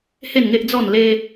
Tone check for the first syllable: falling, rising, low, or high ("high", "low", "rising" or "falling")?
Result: falling